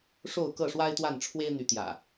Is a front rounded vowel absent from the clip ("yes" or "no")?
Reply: no